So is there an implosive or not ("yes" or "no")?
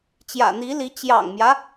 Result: no